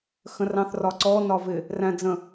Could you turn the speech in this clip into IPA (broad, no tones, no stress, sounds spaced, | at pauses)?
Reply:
x ə̃ r ɑ̃ θ r ɒ ǀ ɔ n ɒ v ɪ | r æ̃ d͡z ə̃